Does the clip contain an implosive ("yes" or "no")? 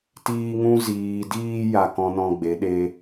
yes